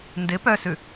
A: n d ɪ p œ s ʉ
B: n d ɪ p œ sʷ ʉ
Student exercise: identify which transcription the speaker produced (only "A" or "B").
A